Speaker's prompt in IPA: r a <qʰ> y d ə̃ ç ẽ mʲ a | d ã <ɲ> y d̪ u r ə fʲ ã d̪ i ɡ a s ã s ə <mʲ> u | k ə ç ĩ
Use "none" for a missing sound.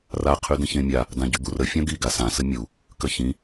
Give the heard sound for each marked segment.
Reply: qʰ, ɟ, mʲ

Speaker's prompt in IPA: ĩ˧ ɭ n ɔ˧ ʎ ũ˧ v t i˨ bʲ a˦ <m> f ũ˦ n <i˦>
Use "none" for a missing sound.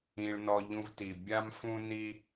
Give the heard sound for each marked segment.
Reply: m, i˦

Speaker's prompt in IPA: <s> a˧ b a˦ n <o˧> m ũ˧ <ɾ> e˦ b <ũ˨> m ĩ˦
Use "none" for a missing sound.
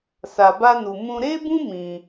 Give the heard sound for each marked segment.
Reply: s, u˧, ɾ, ũ˦

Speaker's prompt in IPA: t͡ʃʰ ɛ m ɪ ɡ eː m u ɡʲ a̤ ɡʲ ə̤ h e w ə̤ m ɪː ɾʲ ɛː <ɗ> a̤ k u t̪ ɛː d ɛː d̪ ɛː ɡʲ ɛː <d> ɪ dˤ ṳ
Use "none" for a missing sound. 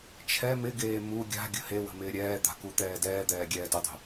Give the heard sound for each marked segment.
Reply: d̪, d

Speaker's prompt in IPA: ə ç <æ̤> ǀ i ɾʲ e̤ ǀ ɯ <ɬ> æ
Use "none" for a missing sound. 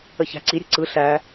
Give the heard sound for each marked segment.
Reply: æ̤, ɬ

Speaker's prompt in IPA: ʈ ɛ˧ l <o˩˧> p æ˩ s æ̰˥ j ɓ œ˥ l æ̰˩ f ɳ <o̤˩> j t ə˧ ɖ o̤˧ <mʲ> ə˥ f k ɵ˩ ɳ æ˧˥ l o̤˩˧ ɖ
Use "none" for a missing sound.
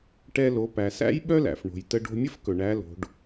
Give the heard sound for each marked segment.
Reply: o˩˧, o̤˩, mʲ

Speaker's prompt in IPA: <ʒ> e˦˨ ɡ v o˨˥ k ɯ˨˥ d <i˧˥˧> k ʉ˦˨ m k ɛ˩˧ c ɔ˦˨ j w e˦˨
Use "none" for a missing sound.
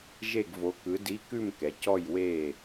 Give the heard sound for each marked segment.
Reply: ʒ, i˧˥˧

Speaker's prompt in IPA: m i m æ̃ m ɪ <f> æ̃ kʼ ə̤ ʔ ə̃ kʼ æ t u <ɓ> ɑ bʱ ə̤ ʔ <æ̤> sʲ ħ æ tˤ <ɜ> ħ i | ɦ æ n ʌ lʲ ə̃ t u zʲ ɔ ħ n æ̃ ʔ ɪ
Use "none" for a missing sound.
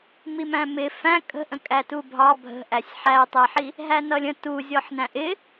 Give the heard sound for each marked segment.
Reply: f, bʱ, æ, ɛ

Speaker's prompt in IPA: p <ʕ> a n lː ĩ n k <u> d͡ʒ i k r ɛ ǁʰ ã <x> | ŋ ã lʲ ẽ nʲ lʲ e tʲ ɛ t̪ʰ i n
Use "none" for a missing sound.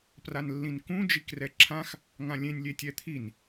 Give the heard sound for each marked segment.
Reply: r, ũ, x

